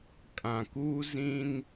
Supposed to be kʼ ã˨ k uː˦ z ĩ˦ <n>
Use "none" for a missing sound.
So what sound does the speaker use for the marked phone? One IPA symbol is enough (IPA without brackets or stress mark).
n